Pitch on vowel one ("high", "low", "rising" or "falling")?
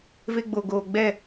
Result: high